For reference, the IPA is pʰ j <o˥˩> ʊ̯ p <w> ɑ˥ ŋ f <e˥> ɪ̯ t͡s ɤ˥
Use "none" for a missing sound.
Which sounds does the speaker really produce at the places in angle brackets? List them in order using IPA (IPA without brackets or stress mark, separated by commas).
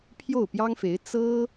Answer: o˥˩, j, e˧˥